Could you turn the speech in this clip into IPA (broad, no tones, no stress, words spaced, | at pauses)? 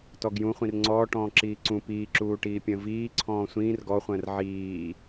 tɔɡjũ χʷĩrŋ͡ǀɔːʈɔ̃ː ǁiːǀũ piːǁuːʈiːpʲə̃ː viːǀʰɔ̃ː sʷĩːr ɡɔχʷə̃ːr ʕiː